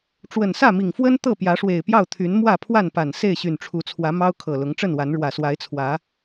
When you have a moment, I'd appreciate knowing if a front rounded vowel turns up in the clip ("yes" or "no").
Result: yes